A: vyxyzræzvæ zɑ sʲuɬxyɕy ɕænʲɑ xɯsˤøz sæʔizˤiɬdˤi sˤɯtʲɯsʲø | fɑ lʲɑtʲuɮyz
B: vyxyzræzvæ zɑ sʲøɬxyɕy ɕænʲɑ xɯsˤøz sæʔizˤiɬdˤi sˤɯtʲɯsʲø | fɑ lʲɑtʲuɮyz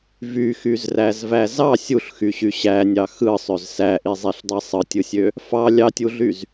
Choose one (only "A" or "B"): A